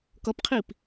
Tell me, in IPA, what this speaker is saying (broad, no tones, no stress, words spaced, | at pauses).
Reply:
kʌpqʰip